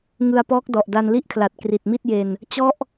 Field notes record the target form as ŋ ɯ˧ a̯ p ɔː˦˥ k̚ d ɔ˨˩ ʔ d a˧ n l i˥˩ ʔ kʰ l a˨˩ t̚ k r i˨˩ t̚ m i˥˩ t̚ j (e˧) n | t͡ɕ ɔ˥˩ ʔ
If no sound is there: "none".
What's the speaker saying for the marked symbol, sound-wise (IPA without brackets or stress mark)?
e˧